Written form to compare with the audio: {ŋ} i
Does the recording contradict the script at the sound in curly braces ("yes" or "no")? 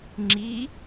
yes